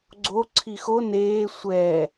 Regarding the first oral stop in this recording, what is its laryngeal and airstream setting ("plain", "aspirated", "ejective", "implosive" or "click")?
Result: click